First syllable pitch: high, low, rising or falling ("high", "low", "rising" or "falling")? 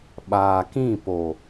low